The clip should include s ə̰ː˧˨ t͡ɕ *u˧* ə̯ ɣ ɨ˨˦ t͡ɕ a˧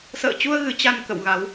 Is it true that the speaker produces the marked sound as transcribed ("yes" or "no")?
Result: yes